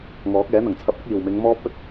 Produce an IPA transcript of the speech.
ŋ ɔː˨˥ k̚ ɛː˨˥ n̪ ɐ˨˩ ŋ t͡sʰ ɐ˧ p̚ ɐ˥ k̚ iː˨˩ w m ɪ˨˧ ŋ m ɔː˥ p̚ ɵ˥ t̚

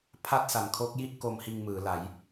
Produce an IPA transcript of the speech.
pʰ a˥˩ t̚ s a˨˩ n kʰ o˦˥ k̚ j i˥˩ ʔ k o˧ m h iː˧ ŋ m ɯː˩˦ l a˩˦ j

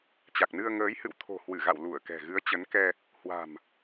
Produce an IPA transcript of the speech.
t͡ɕ a˨˩ k̚ n ɨ˧ ə̯ ŋ əː˨˦ j h ɨ̰˧˨ w t̪ʰ o̤˨˩ h w ɨ˧˩ ɣ a̰˧˨ w l u˧˩ ə̯ k ɛ̤˨˩ ɣ ɨ˨˦ ə̯ t͡ɕ ə˨˦ n k ɛ˧ | h w a̤˨˩ m

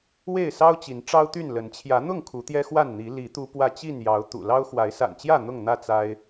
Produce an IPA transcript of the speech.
w e˥˨ ɪ̯ s ɑ˦ ʊ̯ t͡ɕ i˨˦ n ʈ͡ʂ ɑ˦ ʊ̯ t̪ y˥˨ n l ə˨˦ n t͡ɕʰ j ä˨˦ n̪ ʊ˥˨ ŋ kʰ u˨˦ t̪ j ɛ˦ x w a˥˨ n n̪ i˨˦ l i˨˦ t̪ u˦ p w ä˥˨ t͡ɕ i˥˨ n j ɑ˨˦ ʊ̯ t̪ ṵ˨˩ l ɑ˦ ʊ̯ x w a˨˦ ɪ̯ s a̰˨˩ n t͡ɕ j ä˥˨ n̪ ʊ˥˨ ŋ n̪ ä˥˨ t͡s a˦ ɪ̯

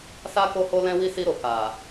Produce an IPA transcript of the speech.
s a˦ k o˦ h o˦ l ɛ̃˦ w i˦ s i˧ ɾ o˨ k a˨

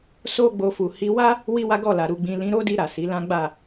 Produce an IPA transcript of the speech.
s o˦ ɡ͡b o˧ f u˨ h i˧ w a˦ | w i˦ w a˦ ɡ ɔ˦˨ l a˨ ɾ u˨ ɡ͡b ĩ˨ l ĩ˧ ɾ o˦ d i˧ ɾ a˨ s i˨˦ l ã˦ ɡ͡b a˦˨

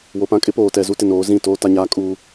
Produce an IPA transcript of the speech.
w o˨ p ã˦ kʼ ɪ˦ p oː˨ t ɛ˨ z u˦ t ɪ˨ n oː˨˦ z ĩ˦˨ t oː˦ t a˦ ɲ aː˦ kʼ uː˦

